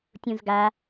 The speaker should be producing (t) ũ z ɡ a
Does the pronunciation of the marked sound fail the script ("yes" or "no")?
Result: yes